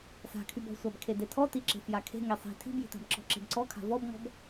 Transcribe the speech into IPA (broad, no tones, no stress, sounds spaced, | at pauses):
s a̤ kʰ y b ɔ̤ sʷ a b kʰ e d e tʰ ɔ t i ǁ e̤ f j a kʰ e̤ ŋ e sˤ i̤ tʰ i̤ b j i̤ t a̤ b ǁ ɔ̤ ǁ e̤ b ǀ ɔ kʰ a̤ v ɔ b ŋ ɔ̤ b